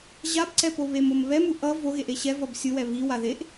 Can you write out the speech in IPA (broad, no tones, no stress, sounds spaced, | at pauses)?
ʑ a b ǀ ɛ p o β e m o m β ɛ m u ʔ ʌ v o ɣ e ʔ e ɕ ɛ v ʌ b sʲ ɯ w ɛ β i w a ð e ʔ